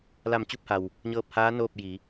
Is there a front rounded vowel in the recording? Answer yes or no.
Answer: no